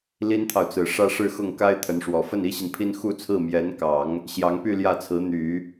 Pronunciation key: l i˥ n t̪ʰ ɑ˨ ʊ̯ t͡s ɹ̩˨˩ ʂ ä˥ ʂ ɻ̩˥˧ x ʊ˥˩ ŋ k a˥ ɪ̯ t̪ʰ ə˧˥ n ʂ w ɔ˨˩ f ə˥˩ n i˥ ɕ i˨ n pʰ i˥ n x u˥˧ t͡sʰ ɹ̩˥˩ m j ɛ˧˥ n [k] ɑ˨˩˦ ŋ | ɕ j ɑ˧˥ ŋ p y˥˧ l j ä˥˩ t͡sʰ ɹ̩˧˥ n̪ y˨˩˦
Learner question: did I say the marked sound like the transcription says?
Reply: yes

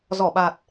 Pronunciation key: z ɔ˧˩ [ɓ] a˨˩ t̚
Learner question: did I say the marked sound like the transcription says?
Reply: yes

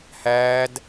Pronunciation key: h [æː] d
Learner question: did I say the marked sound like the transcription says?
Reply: yes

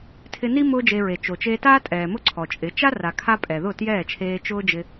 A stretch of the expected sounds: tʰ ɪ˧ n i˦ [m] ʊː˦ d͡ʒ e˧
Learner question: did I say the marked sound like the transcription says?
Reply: yes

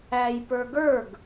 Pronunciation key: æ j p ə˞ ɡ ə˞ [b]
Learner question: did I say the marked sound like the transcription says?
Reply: no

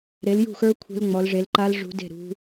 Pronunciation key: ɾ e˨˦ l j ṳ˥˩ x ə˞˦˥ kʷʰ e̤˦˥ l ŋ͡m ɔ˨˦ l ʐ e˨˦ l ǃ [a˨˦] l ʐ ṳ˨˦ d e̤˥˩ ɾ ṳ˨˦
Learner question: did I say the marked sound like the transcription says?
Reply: no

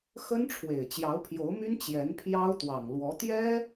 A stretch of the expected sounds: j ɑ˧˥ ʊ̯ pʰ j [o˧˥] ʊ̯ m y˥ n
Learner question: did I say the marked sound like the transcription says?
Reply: yes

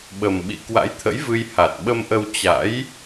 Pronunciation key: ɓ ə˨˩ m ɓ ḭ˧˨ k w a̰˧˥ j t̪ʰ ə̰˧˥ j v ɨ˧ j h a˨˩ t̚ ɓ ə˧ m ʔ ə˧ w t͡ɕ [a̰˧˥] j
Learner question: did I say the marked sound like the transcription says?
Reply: yes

